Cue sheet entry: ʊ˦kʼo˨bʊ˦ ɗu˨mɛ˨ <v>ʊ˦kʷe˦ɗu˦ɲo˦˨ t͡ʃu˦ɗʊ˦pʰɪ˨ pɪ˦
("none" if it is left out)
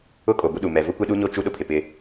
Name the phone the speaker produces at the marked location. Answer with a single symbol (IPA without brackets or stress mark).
v